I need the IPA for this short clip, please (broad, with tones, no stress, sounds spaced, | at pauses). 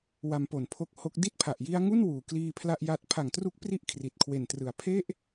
w a˧ m p o˨˩ n pʰ o˦˥ k̚ h o˦˥ k̚ d i˥˩ t̚ pʰ a˨˩ ʔ j i˦˥ a̯ ŋ u˥˩ n w uː˩˦ k l iː˧ pʰ l a˥˩ ʔ j a˦˥ t̚ pʰ a˨˩ ŋ t r u˦˥ k̚ p r i˦˥ ʔ kʰ r i˨˩ t̚ kʰ w e˨˩ n t r ɯ˨˩ a̯ pʰ e˥˩ ʔ